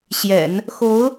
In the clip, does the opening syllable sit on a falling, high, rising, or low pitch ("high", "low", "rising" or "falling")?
low